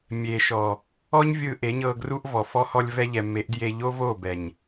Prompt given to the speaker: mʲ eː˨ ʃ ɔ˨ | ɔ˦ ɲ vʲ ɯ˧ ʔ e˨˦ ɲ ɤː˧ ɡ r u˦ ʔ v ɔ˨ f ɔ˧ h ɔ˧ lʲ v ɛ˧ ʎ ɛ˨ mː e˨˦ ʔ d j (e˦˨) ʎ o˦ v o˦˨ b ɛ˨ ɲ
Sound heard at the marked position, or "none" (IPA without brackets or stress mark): e˧